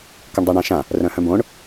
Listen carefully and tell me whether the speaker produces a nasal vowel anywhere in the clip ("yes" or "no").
yes